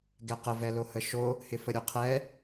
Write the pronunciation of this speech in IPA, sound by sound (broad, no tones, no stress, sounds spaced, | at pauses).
ɡ ɛ q ə v ɛ l o h ə ʃ o | h ɪ f ə ɾʲ o qʰ ɛ